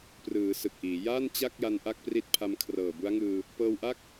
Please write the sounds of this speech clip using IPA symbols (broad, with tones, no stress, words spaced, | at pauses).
prɯː˩˦ sɯ˨˩k̚ʔiː˩˦ ja˥˩n t͡ɕa˥˩k̚ja˧n ʔa˥˩k̚pri˦˥t̚ pʰa˧m kʰrɤː˨˩bu˦˥a̯ŋɯː˧ | pɤː˧wʔa˥˩k̚